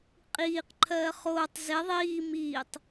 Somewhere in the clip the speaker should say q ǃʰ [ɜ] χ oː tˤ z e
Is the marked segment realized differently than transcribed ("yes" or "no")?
yes